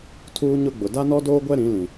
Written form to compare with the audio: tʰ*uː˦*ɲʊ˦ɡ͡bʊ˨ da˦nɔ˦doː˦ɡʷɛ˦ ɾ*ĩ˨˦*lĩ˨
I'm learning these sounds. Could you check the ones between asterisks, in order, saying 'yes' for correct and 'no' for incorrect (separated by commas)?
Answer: yes, yes